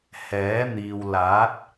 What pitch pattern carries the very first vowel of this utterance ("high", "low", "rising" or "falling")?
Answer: rising